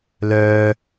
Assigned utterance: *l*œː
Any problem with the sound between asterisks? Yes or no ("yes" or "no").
no